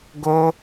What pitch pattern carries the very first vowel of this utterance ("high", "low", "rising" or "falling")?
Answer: high